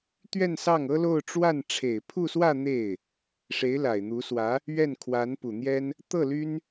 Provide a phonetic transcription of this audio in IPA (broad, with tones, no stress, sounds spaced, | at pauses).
t̪ ɥ ɛ˥˧ n s ɑ˥˩ ŋ ɤ˥ l o˥˧ ʊ̯ ʈ͡ʂ w a˥˩ n ʈ͡ʂʰ e˨˩ ɪ̯ pʰ u˥˧ s w ä˥˧ n̪ e˥˩ ɪ̯ | ʂ e˧˥ ɪ̯ l a˨˩ ɪ̯ n̪ u˧˥ s w ä˧˥ | ɥ ɛ˥˩ n kʰ w a˧˥ n p u˨˩ n̪ j ɛ˥ n | t̪ ɤ˥˩ l y˥ n